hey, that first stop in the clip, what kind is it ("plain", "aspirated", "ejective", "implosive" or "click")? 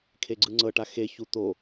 aspirated